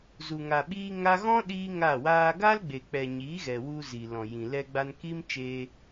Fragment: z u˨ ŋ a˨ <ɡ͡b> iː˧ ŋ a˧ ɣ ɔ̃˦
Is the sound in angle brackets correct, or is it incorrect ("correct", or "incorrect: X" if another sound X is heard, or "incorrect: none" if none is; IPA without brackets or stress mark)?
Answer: incorrect: ɓ